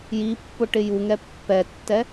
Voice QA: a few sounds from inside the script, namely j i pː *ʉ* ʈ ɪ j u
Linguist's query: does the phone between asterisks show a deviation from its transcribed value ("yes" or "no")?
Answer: yes